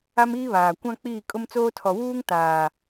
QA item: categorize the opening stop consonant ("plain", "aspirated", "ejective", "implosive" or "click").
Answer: plain